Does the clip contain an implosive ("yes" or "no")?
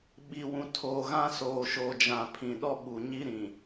yes